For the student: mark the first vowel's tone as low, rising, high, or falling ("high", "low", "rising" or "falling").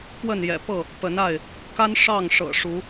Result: falling